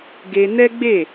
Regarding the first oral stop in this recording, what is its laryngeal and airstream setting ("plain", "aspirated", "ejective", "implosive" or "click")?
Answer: plain